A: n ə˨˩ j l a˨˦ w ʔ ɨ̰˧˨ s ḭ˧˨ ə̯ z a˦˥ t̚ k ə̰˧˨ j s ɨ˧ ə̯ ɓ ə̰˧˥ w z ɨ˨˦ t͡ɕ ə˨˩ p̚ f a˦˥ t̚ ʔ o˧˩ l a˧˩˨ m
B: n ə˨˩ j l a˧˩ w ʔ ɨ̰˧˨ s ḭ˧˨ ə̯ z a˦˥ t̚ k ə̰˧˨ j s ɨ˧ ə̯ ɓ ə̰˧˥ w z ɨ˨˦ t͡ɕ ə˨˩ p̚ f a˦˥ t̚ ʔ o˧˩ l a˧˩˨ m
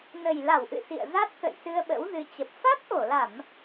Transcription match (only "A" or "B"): B